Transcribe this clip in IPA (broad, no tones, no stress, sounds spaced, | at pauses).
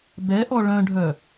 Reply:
b ɛ ʔ ɔ ɭ œ̃ ɖʱ œ